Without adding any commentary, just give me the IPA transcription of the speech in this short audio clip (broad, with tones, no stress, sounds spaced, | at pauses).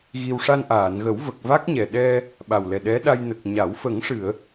ɣ i˧ w ʂ a˧ n ʔ aː˨˩˨ n ɣ ə˨˩˦ w v ə˨˩ k̚ v a˦˥ k̚ ɲ ɛ˨˩ ɗ ɛ˧ | ɓ a˨˩ w l ɛ˨˩ ɗ ɛ˧˥ ɗ a˧ j n ə˨˩ k̚ ɲ a˨˩˦ w f ə˨˩˦ ŋ ʂ ɨ˨˩˨ ə̯